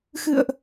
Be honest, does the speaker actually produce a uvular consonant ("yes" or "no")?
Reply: no